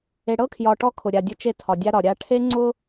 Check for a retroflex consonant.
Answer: present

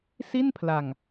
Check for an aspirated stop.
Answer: present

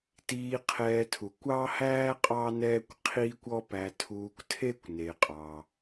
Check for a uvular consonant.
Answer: present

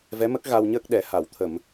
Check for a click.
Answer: absent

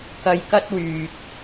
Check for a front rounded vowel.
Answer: present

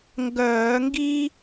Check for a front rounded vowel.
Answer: present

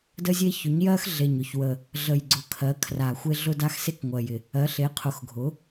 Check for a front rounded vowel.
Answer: absent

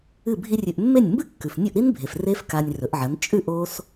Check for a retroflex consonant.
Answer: absent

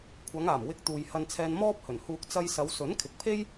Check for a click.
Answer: absent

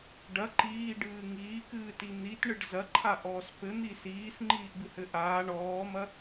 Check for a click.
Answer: present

